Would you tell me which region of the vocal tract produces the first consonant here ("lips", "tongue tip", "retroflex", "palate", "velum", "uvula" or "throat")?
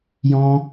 palate